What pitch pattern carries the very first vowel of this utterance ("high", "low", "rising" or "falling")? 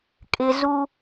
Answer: high